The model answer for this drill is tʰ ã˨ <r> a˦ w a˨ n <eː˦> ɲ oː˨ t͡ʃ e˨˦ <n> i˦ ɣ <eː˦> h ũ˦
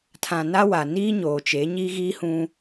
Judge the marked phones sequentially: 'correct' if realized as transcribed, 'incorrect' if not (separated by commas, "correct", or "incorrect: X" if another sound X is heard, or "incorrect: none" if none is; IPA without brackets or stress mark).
incorrect: n, incorrect: iː˦, incorrect: ɲ, incorrect: iː˦